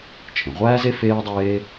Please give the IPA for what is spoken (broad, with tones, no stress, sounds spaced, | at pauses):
t͡ʃʰ ẽ˩ ʁʷ æː˥ z e˥ f eː˥ ə̯ dˤ eː˥